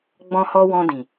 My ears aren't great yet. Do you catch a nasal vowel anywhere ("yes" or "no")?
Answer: yes